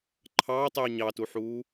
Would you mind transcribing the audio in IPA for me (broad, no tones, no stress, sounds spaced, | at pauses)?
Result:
ǃʰ ɑː tˤ yː ɲ ɑ t u ħ uː